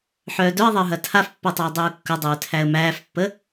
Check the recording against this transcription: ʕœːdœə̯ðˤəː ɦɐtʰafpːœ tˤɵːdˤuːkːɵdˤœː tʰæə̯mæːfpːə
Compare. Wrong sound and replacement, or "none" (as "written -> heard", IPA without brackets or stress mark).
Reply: ʕ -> ħ